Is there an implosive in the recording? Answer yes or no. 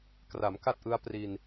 no